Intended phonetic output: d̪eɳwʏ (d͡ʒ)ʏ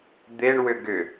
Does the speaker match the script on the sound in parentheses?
no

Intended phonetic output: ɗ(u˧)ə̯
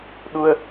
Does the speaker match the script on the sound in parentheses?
yes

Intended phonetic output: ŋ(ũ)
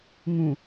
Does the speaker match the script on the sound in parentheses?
yes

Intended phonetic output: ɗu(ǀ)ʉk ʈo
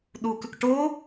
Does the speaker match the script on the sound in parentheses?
no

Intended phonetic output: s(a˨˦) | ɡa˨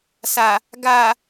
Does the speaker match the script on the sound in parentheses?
no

